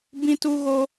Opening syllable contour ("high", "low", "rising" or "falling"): high